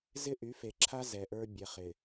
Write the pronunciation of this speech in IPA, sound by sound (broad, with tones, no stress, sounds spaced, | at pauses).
z ɪ˦ ʔ y˨˦ f e˨ ǁʰ a˦ z ɛ˨ ʔ ə˞˦ bʲ ɛ˨ χ ɪ˨